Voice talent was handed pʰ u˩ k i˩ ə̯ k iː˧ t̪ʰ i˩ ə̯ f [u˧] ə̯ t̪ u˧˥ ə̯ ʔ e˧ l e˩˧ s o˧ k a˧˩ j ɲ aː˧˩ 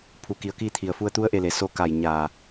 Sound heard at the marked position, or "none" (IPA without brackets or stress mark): u˧